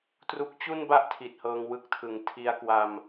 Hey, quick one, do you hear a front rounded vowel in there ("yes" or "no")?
no